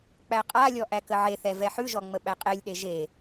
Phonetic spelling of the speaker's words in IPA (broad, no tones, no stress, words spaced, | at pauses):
k͡pæqʼalʲɔ ʔækəʕeθɛ vɛħʉʒɔ ŋ͡məɓæqʼelʲɗe ʒe